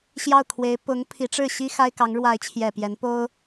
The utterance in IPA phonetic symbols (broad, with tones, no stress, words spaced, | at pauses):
ɕjɑ˥˩ʊ̯kʰwe˧˥ɪ̯ pʊ˧˥ŋ pʰi˧˥ʈ͡ʂɻ̩˥˩ ɕi˥ xa˥ɪ̯kɑ˧˥ŋ ɻwa˧˥ɪ̯t͡ɕʰjɛ˨˩ pjɛ˧˥npo˥ʊ̯